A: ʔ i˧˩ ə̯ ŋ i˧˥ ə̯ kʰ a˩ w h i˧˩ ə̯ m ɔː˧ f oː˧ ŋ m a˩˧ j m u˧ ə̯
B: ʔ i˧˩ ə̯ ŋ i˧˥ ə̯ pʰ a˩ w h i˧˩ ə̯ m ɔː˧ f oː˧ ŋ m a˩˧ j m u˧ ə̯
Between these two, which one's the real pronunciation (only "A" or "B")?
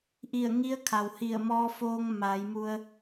A